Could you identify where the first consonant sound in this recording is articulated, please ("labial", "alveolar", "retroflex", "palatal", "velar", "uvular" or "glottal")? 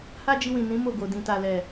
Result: glottal